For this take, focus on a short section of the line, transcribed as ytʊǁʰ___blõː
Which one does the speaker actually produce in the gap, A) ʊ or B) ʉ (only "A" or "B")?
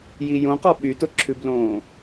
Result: B